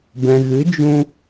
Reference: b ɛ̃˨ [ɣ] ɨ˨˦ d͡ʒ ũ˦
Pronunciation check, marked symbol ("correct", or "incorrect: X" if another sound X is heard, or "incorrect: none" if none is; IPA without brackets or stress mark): correct